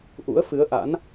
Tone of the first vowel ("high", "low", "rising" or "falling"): rising